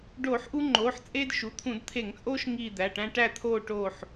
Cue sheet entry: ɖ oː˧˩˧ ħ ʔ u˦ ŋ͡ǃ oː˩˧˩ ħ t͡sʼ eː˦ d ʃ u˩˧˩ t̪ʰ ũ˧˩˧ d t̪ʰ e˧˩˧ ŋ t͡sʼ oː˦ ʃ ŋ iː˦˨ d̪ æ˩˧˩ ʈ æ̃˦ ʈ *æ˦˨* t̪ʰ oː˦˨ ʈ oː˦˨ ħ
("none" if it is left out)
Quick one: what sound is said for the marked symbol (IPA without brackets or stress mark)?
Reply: æ˦˨